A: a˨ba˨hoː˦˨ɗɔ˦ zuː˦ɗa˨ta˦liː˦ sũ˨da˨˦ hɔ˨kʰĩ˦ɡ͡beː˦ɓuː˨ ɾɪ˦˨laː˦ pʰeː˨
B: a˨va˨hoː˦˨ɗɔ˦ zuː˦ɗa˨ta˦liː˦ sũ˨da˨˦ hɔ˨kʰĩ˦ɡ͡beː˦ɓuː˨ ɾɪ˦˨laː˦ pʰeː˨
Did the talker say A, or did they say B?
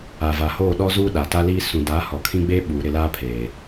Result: B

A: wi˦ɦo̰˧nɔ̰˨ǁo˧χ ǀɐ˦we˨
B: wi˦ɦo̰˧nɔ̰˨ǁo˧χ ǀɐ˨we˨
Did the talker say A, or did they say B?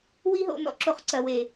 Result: B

